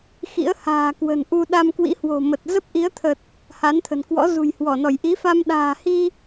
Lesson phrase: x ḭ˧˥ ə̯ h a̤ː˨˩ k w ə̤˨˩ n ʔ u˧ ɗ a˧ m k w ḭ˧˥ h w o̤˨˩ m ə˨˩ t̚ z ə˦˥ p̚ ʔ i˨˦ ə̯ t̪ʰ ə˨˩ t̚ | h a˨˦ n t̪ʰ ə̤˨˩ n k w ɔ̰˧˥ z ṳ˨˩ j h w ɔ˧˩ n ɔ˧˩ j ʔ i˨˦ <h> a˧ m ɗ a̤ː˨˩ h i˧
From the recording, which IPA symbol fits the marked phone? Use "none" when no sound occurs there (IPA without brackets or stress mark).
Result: f